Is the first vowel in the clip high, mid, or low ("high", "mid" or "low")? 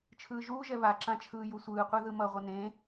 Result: high